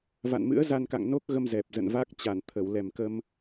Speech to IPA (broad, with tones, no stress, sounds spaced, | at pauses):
v a̰˧˨ n m ɨ̰˧˥ ə̯ z a˧ n k a̰˧˨ ŋ n o˦˥ k̚ ɣ ə˧ m z ɛ˨˩ p̚ z ə̰˧˨ n v a˦˥ k̚ t͡ɕ a˧˩ n t̪ʰ ə˧˩ w l ɛ˨˩ m k ə˧ m